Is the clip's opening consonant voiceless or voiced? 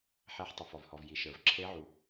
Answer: voiceless